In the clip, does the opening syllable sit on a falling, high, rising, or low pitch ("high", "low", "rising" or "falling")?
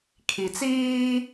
low